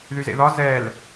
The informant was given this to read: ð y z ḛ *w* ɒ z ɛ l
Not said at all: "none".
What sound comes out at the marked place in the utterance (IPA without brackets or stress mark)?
ð